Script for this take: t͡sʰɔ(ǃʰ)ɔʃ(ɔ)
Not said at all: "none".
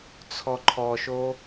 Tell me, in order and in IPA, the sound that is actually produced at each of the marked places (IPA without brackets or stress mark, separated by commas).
ǃʰ, o